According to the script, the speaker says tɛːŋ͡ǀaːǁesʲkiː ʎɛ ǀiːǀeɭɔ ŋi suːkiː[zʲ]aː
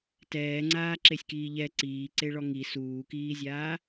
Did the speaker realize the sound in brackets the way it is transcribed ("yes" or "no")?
yes